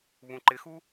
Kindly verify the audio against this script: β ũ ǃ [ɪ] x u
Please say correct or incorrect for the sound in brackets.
correct